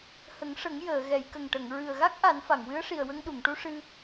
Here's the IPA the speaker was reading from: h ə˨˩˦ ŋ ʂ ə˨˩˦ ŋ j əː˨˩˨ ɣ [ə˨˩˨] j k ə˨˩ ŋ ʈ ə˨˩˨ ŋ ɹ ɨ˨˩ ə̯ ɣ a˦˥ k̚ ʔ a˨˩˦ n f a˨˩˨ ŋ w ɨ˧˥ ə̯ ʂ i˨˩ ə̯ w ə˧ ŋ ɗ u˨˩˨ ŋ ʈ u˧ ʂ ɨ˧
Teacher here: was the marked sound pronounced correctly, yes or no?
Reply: no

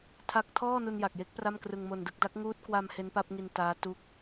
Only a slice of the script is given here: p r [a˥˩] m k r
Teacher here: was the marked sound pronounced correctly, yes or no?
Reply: yes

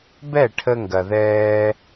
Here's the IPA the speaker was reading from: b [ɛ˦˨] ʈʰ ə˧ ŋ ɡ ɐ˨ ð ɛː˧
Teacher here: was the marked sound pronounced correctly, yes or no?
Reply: yes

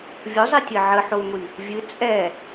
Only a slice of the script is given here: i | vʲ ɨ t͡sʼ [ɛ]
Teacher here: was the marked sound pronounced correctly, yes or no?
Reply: yes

